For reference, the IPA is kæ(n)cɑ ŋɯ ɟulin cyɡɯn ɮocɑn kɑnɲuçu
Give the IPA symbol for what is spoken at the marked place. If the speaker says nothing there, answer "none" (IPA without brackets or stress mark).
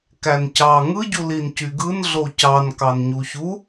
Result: n